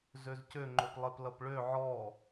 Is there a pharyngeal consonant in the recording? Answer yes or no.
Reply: yes